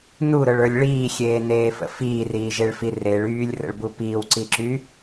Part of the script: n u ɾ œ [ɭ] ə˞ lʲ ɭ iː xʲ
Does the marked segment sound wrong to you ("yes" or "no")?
no